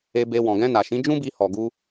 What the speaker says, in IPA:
e˧ b e˧ w ɔ̃˨ ɡ ɛ̃˧ n a˨ ʃ ĩ˨˦ d͡ʒ ũ˦ b i˧ h ɔ˨ ɡ u˧

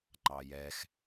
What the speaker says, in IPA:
ŋ͡ǃ ɑ j ɛ x

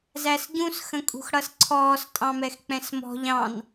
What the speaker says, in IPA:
z æ s ɟ ũ s x ə̃ kʼ ṳ x ɽ ʌ s ǀʰ ɔː s tʼ ɑ̃ m ɛ x k͡p ɛ̃ s m ɔ̤ ʎ ɑ̃ n

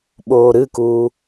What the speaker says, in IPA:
ɓ oː ɾ ɨ k uː

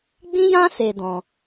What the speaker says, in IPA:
ɡ͡b ĩ˦ j ã˦ s e˧ d ɔ̃˧

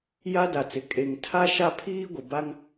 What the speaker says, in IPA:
j a˦ d a˨ t͡s ɪ˨ kʼ e˨ ŋ tʰ a˦ ʃ a˦ pʰ iː˦ ɡʷ ɪ˨ b a˦ ŋ

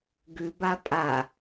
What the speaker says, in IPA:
ɡ ʉ b a pʼ a

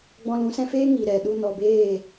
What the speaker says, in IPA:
ɡ͡b ɔ̃˧ l ũ˨˦ s ɛ̃˧ f eː˦ ŋ i˨ ɾ ɛ˨ ɗ u˧ n ɔ˨ b eː˦˨

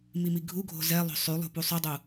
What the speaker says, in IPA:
m i m i ɡʱ u ɡʱ o̤ z ɛ lˠ o̤ sˤ y lˠ ṳ p u sˤ y dˤ u

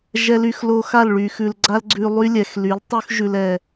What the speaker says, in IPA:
ʒ ɛ˨ l y˨ x l o˧ x a˦˨ l ɭ y˨ x ʉ˨ l ɡ͡ǀ a˦ l ɡ͡ǀ ʉ˧ lˠ y˦ lʲ ɛ˨ x l y˨˦ l tˤ ʉ˦ x ʒ ʉ˧ l ɛ˨

